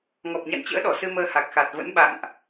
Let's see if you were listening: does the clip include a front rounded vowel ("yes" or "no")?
no